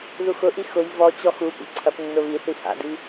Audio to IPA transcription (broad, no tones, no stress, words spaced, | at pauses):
ðuxʊʔi xʊj vɔt͡ɕɔ xu pḭǀʰɐpnːʊ βiθi ha̰di